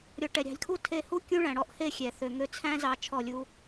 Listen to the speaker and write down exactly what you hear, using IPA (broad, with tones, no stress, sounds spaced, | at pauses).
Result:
ɾʲ ɔ˨ ʈ ɛ˨ ɾʲ ɑ̤˨ lʲ kʰ u˦ tʰ e˧ h u˦ kʲ ũ˦ ɭ æ̃˨ ɽ ɔ˦ ʔ h e˦˨ xʲ ɛ˨ θ ø˨ ŋ ø˧ t͡sʰ æ̃˦ z ɑ˧ t͡ʃʰ ɔ˦˨ lʲ u˦